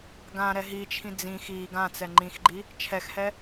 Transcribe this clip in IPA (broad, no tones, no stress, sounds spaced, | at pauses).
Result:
ɡ ã ɾ ɛ ɦ i t͡ʃʰ ĩ d͡z ĩ x i ɡ ã t͡s ɛ ŋ͡ǃ ĩ x ɡ͡ǃ i | t͡ʃʰ ɛ x h ɛ